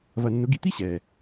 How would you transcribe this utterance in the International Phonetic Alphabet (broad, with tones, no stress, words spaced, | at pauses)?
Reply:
vɐ˧nːʊ˧˥ɡi˧ t̪i˥ɕɛ˩